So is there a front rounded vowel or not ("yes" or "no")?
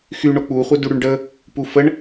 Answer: yes